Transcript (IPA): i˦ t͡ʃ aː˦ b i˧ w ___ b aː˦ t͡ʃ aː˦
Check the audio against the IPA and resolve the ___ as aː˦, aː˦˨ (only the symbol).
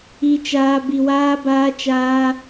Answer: aː˦